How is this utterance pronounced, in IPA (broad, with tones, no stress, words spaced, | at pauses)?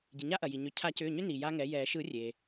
ɟi˩ɲa˦ ʔɐ˩ji˩ ɲʏ˩˥ cʰa˨˩˦cʏː˩˧˩ɲʏ˦ ni˩ja˦ŋɛ˩˥jɛː˨˩˦ ʃɯ˨˩˦rʲe˩